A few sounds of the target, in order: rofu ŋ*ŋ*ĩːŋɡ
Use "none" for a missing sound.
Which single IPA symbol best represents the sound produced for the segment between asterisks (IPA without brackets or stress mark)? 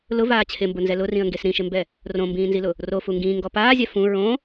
ɡ